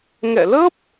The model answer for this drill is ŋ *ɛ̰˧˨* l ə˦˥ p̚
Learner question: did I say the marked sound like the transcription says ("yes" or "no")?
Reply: yes